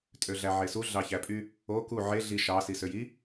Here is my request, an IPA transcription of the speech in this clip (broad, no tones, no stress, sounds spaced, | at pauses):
tʼ ø ɮ æ ʕ e s u ɮ ɑ ç æ pʼ y | o k u ʕ e ɮ i ʃ ɑ s i s ø j i